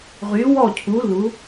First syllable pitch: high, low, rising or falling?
rising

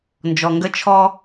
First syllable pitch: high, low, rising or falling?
low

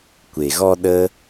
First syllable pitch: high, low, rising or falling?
low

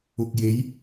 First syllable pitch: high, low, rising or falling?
low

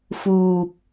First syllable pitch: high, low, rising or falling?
low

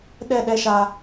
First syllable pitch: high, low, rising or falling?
falling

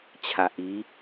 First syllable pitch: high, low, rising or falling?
low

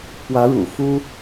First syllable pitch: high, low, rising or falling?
rising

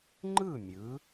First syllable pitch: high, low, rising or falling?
falling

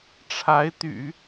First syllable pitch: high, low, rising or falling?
rising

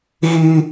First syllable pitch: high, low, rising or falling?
high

